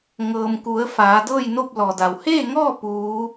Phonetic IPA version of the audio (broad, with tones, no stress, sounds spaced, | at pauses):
ŋ ɤː˩ m k u˩˧ ə̯ f aː˩˧ d ɤː˥˨ j n o˥˨ p̚ l ɔː˩ d a˩ w h eː˥˨ ŋ ɔː˥˨ p uː˧˥